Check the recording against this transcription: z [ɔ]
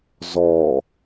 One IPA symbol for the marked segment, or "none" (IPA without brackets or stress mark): ɔː